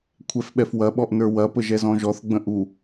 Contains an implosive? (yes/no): yes